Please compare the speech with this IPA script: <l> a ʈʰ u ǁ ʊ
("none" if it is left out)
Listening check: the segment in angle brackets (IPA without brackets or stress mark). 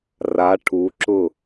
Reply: r